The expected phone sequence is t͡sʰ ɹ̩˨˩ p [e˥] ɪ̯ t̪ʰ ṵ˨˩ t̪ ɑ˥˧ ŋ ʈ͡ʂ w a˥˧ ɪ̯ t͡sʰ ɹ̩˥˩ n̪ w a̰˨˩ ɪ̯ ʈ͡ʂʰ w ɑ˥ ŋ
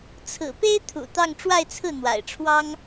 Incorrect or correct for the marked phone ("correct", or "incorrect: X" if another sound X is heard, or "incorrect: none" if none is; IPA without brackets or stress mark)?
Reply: correct